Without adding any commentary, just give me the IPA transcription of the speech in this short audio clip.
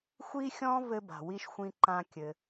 xʷi˥xʲɔ̃˥ vɘ˥ba̤˩ wi˥ʃ xʷĩ˥ǃã˥kʲɘ˩

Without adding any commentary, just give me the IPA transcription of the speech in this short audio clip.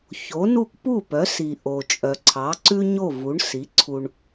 ço˩˥nu˥˩k pu˥˩pœ˩˥si˩ ʔo˩t͡ʃʼœ˩ǀʰɑ˩˥ǀʉ˥ ɲo˥˩vu˩˥ɳ si˩˥ǀʰu˧ɳ

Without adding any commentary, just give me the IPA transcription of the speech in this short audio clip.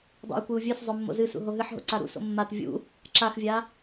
dˤṵi̯kʷɨu̯ vʲɵszˤɵ mːo̰zɨsṵ ɦoɦɨħɦo̰ ǀaɾṵso̰ mːat vʲṵ | ǁaxvʲa

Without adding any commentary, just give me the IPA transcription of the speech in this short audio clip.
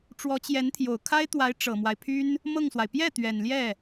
ʈ͡ʂwɔ˧˥t͡ɕjɛ˧˥nt̪ʰjo˨˩ʊ̯ kʰa˥ɪ̯t̪wa˧˥ɪ̯ ʈ͡ʂɤ˨˩mwa˦ɪ̯pʰy˥n | mɤ˥˩ŋswa˩ɪ̯ pjɛ˥˩ t̪ɥɛ˨˩n ljɛ˥˩

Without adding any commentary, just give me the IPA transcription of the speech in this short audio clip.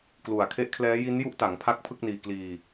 klu˨˩a̯kʰe˦˥ʔkʰlɛː˦˥ ji˦˥n ju˦˥ʔta˩˦ŋ pʰa˥˩k̚pʰɯ˥˩k̚niː˧ kliː˧

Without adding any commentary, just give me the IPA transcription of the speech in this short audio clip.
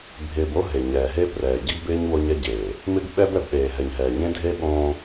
bʱɪː˨b o˦ɦe˨ ɲɛː˨ɦe˦ prɛː˨ ɟɪ˦ɡbɪː˦ɲ wo˦ɲɛ˦ɟeː˨ | mɪ˦ɡɓɛ˦b ɛ˨bɗeː˨ɦɛ˨ɲɦɛː˨ ɲẽ˦dʱe˦ ɓõː˦

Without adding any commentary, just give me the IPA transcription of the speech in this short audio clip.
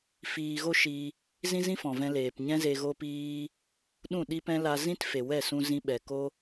fiː˧ ɣo˦ʃi˧ | zĩ˦zĩ˦fɔ̃˨ vɛ̃˧leː˨pɲɛ̃˦ze˧ ɣo˦piː˦ | ɗũ˦˨ɗi˦pɛ̃˦ la˧zĩ˦tfe˨wɛ˦˨ sũ˧zĩ˧ɓɛ˨ko˦

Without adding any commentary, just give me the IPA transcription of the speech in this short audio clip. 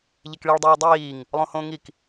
ʎekɭiɭ dˤiːdˤiːŋ | lˠõhõːŋik

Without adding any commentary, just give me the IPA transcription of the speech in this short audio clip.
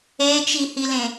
et͡ʃihilẽ

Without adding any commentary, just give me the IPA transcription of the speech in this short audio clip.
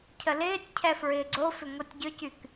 cʰəlɪːtʲcʰɛ fɹɪːɡ͡ǀofʏ ŋotʲɟʏcyk

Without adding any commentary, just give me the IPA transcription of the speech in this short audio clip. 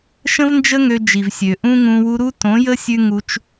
ʃə̃˦vnd͡ʒə˦ ŋø˧d͡ʒi˨vsʲø˨ ʔũ˦ŋũ˧ wu˧ɾu˦tõ˨˦jə˦ sʲʉ˦ŋu˧t͡ʃ

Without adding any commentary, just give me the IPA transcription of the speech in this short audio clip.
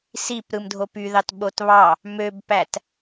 sip ɾɯmdʱopyðɑt ɓotβɑ | møbpæt

